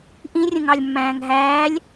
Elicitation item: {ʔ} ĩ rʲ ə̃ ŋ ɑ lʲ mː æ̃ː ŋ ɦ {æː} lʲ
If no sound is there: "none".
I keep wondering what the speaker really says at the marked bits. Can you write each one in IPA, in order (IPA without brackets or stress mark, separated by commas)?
ʔ, æː